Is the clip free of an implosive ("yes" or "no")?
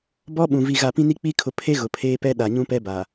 no